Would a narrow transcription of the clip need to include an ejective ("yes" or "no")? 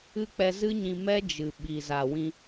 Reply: no